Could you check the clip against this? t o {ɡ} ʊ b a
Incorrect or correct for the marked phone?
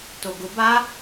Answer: correct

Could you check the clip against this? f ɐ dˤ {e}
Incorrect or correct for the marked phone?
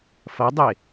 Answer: correct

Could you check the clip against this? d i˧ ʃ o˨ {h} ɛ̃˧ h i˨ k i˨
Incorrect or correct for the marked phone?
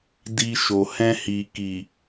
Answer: correct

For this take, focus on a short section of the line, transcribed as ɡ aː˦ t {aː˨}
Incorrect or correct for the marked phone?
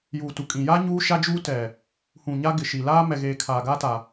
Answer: incorrect: a˨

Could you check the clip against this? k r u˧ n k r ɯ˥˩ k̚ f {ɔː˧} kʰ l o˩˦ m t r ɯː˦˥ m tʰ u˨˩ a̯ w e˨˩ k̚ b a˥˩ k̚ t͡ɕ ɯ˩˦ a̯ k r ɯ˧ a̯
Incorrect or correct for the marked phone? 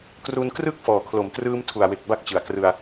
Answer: incorrect: ɔː˩˦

